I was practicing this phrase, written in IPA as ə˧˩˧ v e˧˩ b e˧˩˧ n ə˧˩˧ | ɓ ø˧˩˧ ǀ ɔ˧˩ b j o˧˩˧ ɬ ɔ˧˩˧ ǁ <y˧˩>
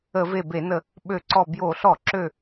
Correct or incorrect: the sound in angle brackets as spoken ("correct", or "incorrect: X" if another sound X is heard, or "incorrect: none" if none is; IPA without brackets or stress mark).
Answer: incorrect: ø˧˩